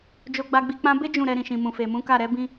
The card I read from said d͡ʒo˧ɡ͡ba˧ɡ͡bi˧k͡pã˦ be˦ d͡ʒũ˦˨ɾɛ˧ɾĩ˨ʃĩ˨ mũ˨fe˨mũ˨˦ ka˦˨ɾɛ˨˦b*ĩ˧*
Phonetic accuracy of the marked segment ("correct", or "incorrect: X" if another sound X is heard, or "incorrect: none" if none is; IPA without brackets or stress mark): correct